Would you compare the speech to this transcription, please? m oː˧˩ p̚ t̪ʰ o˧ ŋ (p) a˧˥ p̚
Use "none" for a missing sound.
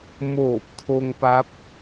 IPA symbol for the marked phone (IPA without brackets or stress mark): p